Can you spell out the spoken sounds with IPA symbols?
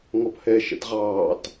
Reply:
ŋ ɔ p h ɛ ʃ ɛ̰ t ʁ ɑː t

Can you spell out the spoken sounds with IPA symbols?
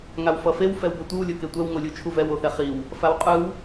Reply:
ŋ a w f ʌ f e w f ɛ w b ʌ tʷ ɯ w lʲ o k e tʷ ɛ w ŋ o lʲ u t͡ʃʰ u v ɛ w o θ ɛ χ i w | f a w qʼ ɯ w

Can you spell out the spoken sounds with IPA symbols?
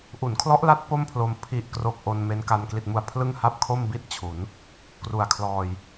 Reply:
ʔ u˩˦ n kʰ l ɔ˦˥ ʔ l a˦˥ t̚ p o˥˩ m pʰ l o˧ m pʰ i˨˩ ʔ k r o˨˩ k̚ ʔ o˧ n m e˦˥ n k a˧ n k l i˨˩ t̚ m u˨˩ a̯ pʰ l ɯ˥˩ ŋ h a˥˩ p̚ kʰ o˥˩ m b i˥˩ t̚ t͡ɕʰ u˩˦ n | k r u˨˩ a̯ kʰ l ɔː˧ j

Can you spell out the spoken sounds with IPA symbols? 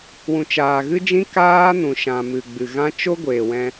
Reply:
w ũ˨ t͡ʃ aː˨ ɣ ɨ˦ d͡ʒ ĩ˦ k aː˦ n ũ˨ ʃ ã˨ m ɨ˨ ɡ͡b ɨ˨ ɣ ã˦ t͡ʃ o˦ ɡʷ eː˨ w ɛ̃˧

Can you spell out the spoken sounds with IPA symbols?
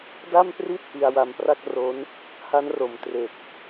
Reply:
d a˥˩ m p r i˥˩ t̚ ʔ i˧ a̯ w a˧ m p r a˥˩ k̚ r o˦˥ n | h a˦˥ n r o˩˦ m t r e˨˩ k̚

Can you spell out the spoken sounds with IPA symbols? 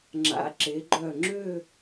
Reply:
ŋ͡ǁ a̰˩˧ ǁ e˩˧ ɡ͡ǃ œ˧˩ ŋ͡ǁ ø˥˧

